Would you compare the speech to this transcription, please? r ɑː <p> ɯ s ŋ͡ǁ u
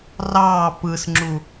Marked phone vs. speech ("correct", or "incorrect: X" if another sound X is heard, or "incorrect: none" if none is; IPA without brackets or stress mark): correct